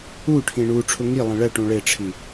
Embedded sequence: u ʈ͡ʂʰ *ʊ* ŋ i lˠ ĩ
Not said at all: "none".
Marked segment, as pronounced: ʊ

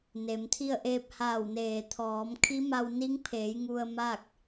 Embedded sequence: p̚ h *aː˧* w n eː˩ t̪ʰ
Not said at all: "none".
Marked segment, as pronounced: aː˧˩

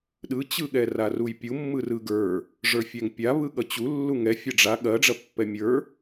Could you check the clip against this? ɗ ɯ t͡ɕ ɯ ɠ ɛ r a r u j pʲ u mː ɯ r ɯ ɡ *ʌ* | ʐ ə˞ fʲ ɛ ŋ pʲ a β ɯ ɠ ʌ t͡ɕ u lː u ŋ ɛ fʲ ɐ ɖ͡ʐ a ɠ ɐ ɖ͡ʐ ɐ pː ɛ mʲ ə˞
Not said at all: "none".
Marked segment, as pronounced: ə˞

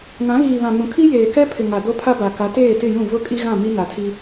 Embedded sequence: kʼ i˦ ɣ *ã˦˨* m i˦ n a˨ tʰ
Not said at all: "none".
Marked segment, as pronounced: ã˦˨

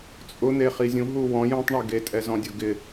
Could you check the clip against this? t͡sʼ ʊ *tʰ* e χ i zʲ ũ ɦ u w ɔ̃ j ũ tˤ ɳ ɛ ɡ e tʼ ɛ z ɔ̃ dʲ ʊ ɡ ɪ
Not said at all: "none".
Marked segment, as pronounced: n̪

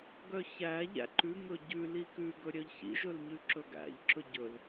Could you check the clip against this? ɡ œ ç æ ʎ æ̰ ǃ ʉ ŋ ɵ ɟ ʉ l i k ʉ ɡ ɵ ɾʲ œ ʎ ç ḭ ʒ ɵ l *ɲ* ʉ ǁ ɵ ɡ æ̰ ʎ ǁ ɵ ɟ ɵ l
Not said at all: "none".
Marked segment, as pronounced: ɲ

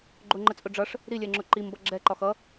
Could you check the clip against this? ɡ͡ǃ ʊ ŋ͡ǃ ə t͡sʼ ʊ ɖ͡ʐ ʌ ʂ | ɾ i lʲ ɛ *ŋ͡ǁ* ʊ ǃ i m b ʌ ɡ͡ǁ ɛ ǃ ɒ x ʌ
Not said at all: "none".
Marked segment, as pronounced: ŋ͡ǁ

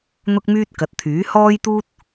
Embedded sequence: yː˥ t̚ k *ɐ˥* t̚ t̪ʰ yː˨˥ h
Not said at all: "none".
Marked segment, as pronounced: ɐ˨˥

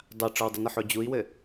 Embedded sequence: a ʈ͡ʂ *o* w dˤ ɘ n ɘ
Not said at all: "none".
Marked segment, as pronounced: ɔ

